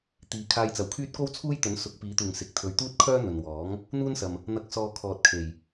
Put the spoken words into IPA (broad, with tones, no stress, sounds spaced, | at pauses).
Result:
t̪ iː˨˧ kʰ aː˧ j t͡s ɐ˨ w kʰ yː˥ t̚ k o˥ w t͡sʰ uː˥ j t̪ ɵ˨˥ n s ʊ˨˥ k̚ p iː˨˥ t̪ uː˨ ŋ s ɪ˨ k̚ t̪ʰ ɵ˧ ɥ t̪ uː˥ t̚ kʰ œː˥ n̪ ɵ˨ n w ɔː˨˥ ŋ | n̪ uː˥ n s ɐ˨ m | n̪ ɐ˨˥ k̚ s ɔː˨ kʰ ɔː˨ t̚ kʰ e˨˩ j